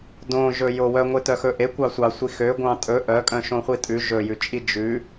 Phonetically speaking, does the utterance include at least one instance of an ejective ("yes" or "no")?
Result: yes